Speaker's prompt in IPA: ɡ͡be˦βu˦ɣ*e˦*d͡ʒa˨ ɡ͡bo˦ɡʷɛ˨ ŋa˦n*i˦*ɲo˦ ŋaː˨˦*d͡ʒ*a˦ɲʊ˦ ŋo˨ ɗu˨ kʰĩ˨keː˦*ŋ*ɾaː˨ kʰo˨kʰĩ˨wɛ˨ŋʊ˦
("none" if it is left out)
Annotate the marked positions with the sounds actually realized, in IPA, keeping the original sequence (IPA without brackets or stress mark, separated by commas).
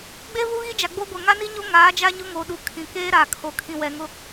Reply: i˦, i˦, d͡ʒ, none